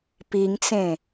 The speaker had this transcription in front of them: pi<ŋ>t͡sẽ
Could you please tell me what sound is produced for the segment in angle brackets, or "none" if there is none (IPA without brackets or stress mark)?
ŋ